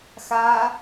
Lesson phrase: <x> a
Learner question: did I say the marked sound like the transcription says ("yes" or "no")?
yes